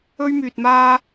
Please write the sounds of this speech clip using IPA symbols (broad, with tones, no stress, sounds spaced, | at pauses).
ɵ˧ ɥ m yː˨ t̚ m aː˧